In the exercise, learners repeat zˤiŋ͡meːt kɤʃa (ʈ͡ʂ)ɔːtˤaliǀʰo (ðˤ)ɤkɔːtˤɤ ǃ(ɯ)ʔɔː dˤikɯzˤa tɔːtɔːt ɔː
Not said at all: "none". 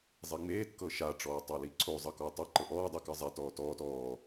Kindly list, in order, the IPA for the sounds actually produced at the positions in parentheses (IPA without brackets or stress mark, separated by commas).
ʈ͡ʂ, zˤ, ɤ